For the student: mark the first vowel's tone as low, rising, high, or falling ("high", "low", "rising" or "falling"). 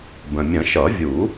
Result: low